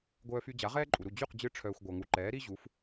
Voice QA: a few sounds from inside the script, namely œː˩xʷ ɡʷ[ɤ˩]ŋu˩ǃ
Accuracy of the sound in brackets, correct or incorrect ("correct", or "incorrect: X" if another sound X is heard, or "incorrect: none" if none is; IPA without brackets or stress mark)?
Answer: correct